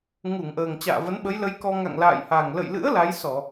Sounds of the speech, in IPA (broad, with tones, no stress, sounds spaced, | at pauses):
ŋ u˧˩ ŋ ʔ əː˨˩ ŋ t͡ɕ a̰ː˧˨ v ə˨˦ n ɓ ə˨˦ j l ə˨˦ j k ɔ˧ ŋ a̰˧˨ ŋ l a̰ː˧˨ j h a˨˩ ŋ l ə̰˧˨ j l ɨ̰˧˥ ə̯ l a˨˦ j s ɔ˧˩˨